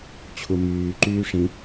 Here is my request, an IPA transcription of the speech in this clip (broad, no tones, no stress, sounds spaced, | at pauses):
t͡ɕʰ u m yː ǃ yː ʂ ĩ